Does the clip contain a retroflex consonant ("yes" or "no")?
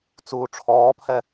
yes